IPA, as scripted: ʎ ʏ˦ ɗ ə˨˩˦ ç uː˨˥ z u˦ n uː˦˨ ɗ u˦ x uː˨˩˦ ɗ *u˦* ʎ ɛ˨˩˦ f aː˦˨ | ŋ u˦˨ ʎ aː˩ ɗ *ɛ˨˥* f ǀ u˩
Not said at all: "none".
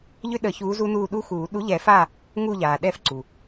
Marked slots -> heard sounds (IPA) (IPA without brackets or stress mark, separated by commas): u˨˥, ɛ˦˨